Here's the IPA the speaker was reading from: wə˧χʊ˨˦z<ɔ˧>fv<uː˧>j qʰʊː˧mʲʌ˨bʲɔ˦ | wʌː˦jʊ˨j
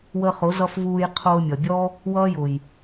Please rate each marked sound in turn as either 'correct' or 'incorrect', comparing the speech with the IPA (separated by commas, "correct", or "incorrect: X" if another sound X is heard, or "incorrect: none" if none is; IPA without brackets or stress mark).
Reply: incorrect: ʌ˧, correct